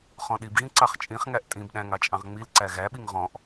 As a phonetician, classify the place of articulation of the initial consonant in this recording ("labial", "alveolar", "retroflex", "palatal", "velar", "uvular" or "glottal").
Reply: uvular